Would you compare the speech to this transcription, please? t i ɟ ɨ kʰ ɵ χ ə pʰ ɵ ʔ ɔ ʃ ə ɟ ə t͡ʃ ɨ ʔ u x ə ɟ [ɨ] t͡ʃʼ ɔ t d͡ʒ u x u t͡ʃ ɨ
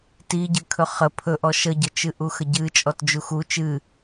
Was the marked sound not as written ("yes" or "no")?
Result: no